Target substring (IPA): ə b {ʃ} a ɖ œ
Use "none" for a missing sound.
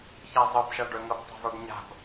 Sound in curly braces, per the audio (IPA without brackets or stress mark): ʃ